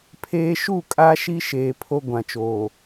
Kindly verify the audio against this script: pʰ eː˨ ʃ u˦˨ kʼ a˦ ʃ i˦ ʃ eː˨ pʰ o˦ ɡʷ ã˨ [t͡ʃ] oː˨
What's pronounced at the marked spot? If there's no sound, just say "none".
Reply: t͡ʃ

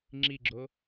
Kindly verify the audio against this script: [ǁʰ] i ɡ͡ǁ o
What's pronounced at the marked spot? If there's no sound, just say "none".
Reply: ŋ͡ǁ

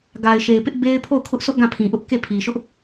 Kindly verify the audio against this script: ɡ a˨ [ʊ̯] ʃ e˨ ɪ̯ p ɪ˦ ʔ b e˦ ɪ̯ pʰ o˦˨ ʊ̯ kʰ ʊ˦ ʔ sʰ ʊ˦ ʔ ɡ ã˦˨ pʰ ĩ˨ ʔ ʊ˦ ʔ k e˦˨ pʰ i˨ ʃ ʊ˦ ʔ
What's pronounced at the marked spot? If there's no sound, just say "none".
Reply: ɪ̯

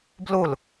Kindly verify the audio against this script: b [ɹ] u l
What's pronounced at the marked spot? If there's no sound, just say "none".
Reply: l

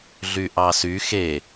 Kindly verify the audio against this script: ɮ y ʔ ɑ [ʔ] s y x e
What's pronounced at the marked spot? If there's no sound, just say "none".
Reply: none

